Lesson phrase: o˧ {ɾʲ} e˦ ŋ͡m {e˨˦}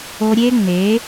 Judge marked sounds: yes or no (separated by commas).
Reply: yes, yes